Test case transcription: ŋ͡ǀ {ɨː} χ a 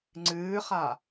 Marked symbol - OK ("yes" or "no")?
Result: yes